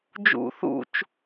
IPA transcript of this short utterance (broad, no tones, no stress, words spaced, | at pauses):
d͡ʒṵ θṵt͡ʃ